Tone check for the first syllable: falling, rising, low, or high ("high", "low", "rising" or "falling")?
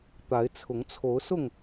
rising